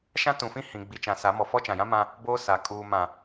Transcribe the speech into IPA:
ʃ ã˦ t ũ˨ f ĩ˦ h ĩ˨ ɡ͡b i˨ t͡ʃ ã˨ s a˨˦ m ɔ˨ f ɔ˦ t͡ʃ ã˨ j ã˦ m ã˦ | b oː˦ s a˨ kʼ uː˨ m ã˨

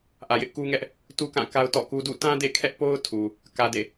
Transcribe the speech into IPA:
ʔ ä˨ j ɪ˦ ʔ k u˦ ŋ ɛ˦ ʔ | t u˦ k ã˦˨ k a˦ ʊ̯ t ɔ̰˦˨ k u˦ d ṵ˦˨ t ã˦ d ḛ˦˨ kʰ ɛ˦ ʔ p o˦ ʊ̯ tʰ u˨ | k ä˨ d ḛ˦˨

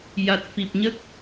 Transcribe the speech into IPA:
j a˨˩ t̚ f i˨˩ p̚ ɲ ə˦˥ k̚

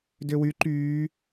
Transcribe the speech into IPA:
d ø w y ǃ yː

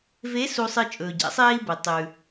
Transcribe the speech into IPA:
v e˧˥ s u˧ sˤ ɨ˧ t͡ʃʼ ɵː˩ ɟ a̰˧˥ sˤ eː˥ i̯ b ɨ˩ tˤ ʉ˩

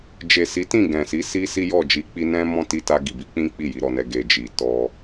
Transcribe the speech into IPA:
d͡ʒ e˨ s i˨˦ t ĩ˦˨ ɡ ɛ̃˨ s i˨˦ s i˦ s i˦ j ɔ˦˨ d͡ʒ i˨˦ k͡p i˧ n ɛ̃˦ m ɔ̃˦ t i˧ t a˧ ɡ i˨ b i˨˦ k͡p ĩ˦ k͡p i˦˨ j i˨˦ ɾ ɔ˧ n ɛ˧ ɡ e˨ d͡ʒ i˨ t ɔ˧

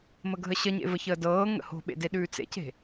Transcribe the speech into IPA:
m ə ɡʱ ə ɕ ə ɲ ḛ v ə ç əː d ɤː ŋ ə̰ h o̤ ɓ ḛ d e ɗ ʉː t͡s ḛ c e̤

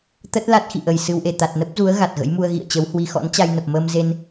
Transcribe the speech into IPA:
t̪ ə˦˥ t̚ l a˦˥ t̚ x ḭ˧˨ ʔ ə˨˩ j s ɨ˧ w ʔ e˨˩ t̪ a˨˩ t̚ n ə˦˥ p̚ z u˨˦ ə̯ ɣ a˨˩ t̚ ɣ ə̰˧˥ j m u˧ ə̯ ɣ ḭ˧˨ ə̯ t͡ɕ ə˨˦ w h w i˧ x ɔ̰˧˥ n t͡ɕ a˧ j n ə˨˩ p̚ m əː˧ m z e˧ n

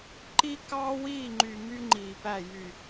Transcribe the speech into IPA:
ǃ i˦ k ɑː˦ w iː˦˨ ŋ͡ǃ y˨ m y˦ ŋ͡ǃ iː˨ p æ˦˨ j y˨

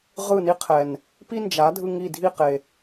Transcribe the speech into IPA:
ʁ ɯ˦˨ n i˦ qʰ ɛ˨ n | p i˦ n d͡ʒ a˨˦ dʱ ɯ˧ ŋ i˦˨ dʱ i˦˨ q e˨

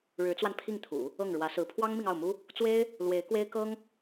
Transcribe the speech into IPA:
ɻ ɻ̩˧˥ t͡s w a˧ n pʰ i˥˩ ŋ t̪ʰ ṵ˨˩˦ | ɤ˥˩ ŋ ɻ w ä˧˥ s ɹ̩˧˥ pʰ w ɑ˥ ŋ m i˨ ŋ ɑ˥˩ ʊ̯ m u˥ | t͡s w e˥ ɪ̯ | l w e˧˥ ɪ̯ k w e˥ ɪ̯ k ɤ˥ ŋ

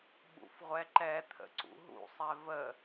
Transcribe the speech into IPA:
ɓ ṵ f ʁʷ ɛ ǃ ɛ t̪ʰ ə̰ ǀ ṵ ɦ ṵ sˤ ɛ v ə

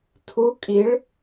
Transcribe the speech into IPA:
tʰ u kʼ i ɭ

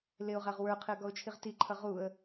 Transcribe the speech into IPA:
l ɪ ʊ̯ ʁ æ ʁ w ə˞ qʰ ɪ ə̯ ɡ ɔ ʊ̯ t͡ʃʰ i ʁ t i ǃʰ ʌ ʁ u ə̯

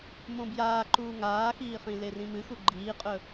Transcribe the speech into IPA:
m õ b j aː ǃ uː ŋ aː x iː χ ĩ l e r ĩ m ɨ x u ɡ͡ǃ iː qʼ ɵ

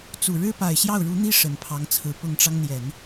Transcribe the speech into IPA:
t͡s u˨˩ ɻ ɻ̩˥ p a˨˩ ɪ̯ ɕ j ɑ˥˩ ʊ̯ ɻ u˧˥ n̪ i˥ ʂ ə˨˩ n pʰ ɑ˧˥ ŋ t͡sʰ ɹ̩˧˥ p ʊ˨˩ ŋ ʈ͡ʂ ɑ˦ ŋ n̪ j ɛ˨˩˦ n

